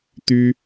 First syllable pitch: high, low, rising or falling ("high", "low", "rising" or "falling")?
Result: high